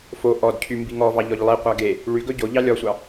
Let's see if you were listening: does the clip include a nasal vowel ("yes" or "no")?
no